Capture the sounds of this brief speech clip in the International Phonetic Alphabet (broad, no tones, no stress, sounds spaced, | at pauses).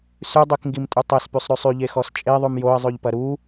s ʉ dˤ y k ŋ ɡ i m tʼ u tˤ ɛ s p y sˤ ɾ ʉ sˤ y ʎ e x ɔ s t͡ʃʼ e ðˤ ʉ m j o ə̯ zˤ ʉ ʎ p ɐ ɾ u